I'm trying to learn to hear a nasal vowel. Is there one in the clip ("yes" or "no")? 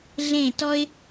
yes